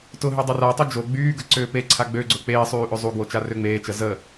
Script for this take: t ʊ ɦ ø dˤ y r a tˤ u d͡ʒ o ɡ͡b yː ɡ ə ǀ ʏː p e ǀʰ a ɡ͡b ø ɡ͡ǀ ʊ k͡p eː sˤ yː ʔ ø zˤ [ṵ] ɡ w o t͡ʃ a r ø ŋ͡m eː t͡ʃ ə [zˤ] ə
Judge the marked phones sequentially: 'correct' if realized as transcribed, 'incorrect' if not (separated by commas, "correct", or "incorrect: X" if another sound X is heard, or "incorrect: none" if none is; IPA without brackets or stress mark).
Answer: incorrect: u, incorrect: z